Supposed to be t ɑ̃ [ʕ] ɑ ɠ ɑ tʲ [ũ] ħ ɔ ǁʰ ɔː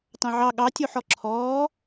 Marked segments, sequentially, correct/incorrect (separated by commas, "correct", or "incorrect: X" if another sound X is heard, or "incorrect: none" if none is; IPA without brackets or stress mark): correct, incorrect: u